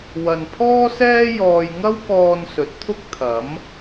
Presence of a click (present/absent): absent